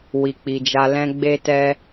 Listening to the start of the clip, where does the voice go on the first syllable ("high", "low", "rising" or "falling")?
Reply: low